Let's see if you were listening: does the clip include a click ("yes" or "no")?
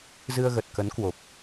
no